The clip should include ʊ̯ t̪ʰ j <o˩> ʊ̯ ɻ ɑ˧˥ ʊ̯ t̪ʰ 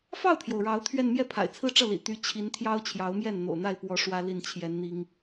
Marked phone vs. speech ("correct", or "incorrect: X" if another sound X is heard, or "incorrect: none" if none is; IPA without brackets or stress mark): correct